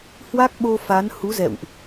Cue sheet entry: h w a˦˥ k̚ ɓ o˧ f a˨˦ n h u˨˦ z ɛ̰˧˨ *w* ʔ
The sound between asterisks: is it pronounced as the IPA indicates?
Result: yes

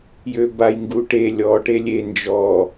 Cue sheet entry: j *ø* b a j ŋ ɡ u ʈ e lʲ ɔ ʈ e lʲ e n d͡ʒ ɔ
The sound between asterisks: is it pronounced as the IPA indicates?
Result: yes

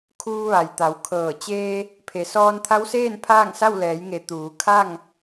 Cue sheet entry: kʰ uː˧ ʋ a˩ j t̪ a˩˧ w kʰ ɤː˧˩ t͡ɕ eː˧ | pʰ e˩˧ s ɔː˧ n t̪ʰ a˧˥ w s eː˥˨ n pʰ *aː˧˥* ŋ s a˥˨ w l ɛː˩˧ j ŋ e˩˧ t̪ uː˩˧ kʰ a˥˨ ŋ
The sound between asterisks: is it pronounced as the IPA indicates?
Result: no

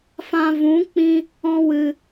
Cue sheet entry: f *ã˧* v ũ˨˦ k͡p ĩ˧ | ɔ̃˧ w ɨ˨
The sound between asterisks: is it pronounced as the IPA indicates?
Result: yes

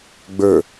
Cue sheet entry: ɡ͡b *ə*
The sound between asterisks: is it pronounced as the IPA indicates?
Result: no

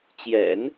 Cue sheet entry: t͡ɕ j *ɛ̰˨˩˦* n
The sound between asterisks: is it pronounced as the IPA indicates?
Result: yes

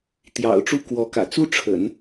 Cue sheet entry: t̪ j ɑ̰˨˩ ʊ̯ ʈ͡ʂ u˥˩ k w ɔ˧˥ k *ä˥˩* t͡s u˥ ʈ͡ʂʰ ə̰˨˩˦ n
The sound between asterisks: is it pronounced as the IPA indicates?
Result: no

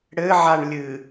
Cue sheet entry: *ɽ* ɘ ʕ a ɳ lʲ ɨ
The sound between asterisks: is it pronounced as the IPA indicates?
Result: yes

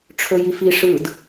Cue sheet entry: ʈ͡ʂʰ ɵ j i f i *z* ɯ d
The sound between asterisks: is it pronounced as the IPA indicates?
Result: no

